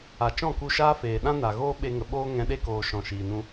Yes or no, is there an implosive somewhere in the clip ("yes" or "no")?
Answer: yes